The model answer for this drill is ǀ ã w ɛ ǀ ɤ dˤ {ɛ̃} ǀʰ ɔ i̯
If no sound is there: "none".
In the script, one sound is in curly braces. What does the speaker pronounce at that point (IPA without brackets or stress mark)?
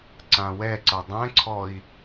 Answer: ɛ̃